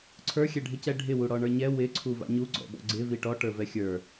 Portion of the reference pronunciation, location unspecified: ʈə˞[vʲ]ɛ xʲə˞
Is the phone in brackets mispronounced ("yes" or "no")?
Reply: yes